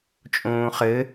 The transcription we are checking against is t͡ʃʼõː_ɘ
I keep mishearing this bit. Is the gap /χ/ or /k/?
χ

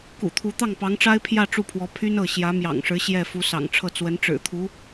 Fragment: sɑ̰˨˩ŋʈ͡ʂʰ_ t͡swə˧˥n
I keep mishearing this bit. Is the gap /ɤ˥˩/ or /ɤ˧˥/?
ɤ˥˩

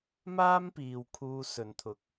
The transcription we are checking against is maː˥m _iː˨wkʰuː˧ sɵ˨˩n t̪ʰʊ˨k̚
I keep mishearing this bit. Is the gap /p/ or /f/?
p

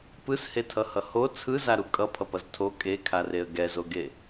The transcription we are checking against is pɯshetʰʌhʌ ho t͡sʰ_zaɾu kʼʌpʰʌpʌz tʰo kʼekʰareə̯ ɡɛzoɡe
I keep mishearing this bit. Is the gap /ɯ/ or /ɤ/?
ɯ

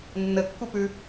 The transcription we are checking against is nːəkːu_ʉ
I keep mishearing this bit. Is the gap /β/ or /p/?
p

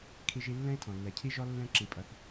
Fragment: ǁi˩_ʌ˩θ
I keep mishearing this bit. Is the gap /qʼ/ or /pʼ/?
pʼ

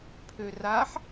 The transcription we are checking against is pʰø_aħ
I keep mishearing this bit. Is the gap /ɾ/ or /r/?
r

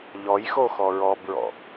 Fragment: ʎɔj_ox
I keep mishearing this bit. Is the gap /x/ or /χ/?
x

